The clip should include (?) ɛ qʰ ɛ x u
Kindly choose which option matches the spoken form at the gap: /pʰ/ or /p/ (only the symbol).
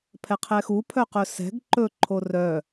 pʰ